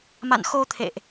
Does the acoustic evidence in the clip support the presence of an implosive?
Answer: no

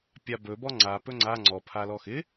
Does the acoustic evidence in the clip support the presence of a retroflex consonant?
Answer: no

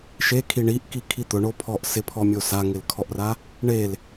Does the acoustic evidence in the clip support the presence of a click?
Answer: no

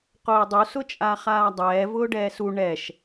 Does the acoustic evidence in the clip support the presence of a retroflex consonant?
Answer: yes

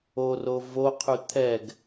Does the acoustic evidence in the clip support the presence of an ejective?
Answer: no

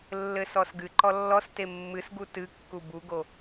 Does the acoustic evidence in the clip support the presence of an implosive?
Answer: no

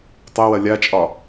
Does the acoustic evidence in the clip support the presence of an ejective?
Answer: yes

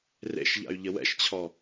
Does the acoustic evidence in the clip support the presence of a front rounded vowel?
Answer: yes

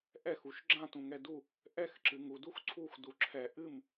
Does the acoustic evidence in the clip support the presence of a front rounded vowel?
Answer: no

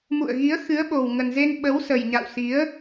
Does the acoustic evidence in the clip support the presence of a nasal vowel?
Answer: no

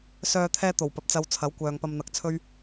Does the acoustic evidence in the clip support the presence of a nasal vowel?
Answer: no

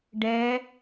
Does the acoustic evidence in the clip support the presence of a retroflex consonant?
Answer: yes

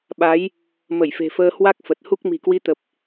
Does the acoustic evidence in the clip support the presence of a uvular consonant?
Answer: no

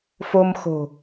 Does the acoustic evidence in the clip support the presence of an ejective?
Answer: no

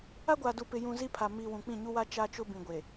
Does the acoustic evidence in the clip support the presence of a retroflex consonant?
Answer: no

